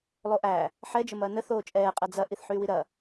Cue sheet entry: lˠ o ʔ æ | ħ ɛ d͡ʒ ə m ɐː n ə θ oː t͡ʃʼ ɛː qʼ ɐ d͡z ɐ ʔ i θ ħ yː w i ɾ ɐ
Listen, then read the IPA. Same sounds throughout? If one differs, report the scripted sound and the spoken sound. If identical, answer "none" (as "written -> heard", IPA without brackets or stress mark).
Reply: none